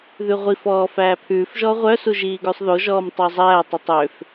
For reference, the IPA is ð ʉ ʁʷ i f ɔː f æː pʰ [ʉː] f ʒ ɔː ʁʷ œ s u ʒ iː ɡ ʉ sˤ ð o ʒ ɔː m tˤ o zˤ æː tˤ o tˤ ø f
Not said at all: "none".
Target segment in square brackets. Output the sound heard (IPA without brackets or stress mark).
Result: ʉː